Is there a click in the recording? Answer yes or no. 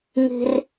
no